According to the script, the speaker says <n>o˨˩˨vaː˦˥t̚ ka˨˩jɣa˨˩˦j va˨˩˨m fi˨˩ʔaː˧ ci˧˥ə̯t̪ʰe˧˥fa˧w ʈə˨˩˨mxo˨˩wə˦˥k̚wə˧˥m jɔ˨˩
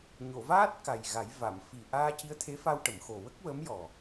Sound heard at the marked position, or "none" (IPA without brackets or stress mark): ɲ